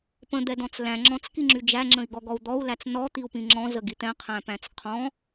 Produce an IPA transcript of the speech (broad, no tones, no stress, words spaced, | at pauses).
pə̃d̪ɛdɔ̃t͡s læ̃ ŋ͡ǁɔ̃t͡skiŋ͡ǁy d͡ʒæŋ͡ǁə̃i̯ɡɔɡɔu̯ d̪ɔu̯læt͡s nɔt̪iu̯pĩ ŋ͡ǁɔ̃zəɡi t̪ɛ̃qʰæ̃pæ̃t͡s qʰɔ̃